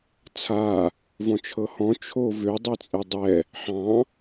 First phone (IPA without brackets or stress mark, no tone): t͡sʰ